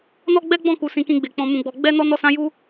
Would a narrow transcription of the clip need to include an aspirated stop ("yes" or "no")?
no